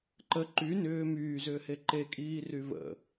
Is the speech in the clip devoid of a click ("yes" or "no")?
no